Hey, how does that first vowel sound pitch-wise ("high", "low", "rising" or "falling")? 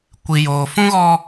low